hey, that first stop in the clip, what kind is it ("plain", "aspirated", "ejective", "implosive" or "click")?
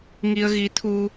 aspirated